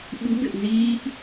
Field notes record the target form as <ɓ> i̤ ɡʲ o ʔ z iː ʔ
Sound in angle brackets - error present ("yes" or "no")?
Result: no